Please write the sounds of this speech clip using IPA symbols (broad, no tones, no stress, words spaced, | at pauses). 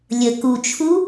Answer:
lʲə kut͡ʃʰu